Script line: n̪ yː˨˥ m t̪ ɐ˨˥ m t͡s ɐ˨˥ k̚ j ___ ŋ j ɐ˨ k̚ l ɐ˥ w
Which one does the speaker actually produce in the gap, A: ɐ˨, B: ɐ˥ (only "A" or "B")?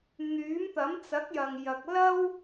A